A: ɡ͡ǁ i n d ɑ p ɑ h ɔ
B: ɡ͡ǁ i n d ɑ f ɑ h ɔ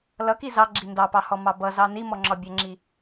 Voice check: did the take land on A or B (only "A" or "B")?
A